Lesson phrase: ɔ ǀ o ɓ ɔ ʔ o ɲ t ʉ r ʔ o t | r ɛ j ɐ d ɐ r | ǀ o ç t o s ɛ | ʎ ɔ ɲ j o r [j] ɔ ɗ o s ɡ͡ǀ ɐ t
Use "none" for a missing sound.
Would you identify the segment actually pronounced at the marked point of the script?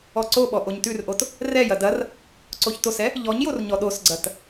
ɲ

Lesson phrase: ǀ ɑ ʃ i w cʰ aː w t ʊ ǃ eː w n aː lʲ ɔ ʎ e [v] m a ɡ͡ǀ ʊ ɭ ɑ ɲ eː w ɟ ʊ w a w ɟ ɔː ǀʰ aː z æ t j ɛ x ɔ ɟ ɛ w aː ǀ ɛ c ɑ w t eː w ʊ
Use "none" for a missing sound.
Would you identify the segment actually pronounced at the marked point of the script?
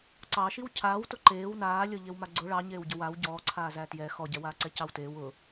w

